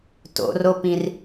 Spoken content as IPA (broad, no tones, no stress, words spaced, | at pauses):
to̰ropĩr